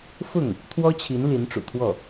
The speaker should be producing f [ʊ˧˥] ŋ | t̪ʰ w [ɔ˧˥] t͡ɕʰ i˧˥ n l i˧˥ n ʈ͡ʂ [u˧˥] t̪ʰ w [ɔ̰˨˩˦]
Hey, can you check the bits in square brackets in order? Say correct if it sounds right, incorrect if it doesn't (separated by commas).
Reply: incorrect, incorrect, incorrect, incorrect